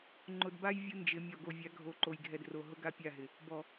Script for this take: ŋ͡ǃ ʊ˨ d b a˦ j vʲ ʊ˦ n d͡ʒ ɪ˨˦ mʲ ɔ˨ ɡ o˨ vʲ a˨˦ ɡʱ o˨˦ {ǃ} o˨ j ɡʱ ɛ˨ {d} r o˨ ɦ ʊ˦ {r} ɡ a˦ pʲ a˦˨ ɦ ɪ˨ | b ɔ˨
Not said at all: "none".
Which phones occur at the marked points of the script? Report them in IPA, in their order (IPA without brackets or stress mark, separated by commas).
ǃ, d, none